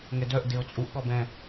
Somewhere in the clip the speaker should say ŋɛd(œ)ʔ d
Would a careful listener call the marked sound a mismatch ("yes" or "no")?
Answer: no